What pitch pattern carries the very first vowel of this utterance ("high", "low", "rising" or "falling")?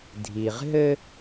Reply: low